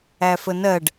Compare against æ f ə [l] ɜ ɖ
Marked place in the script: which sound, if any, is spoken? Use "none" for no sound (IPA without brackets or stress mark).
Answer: n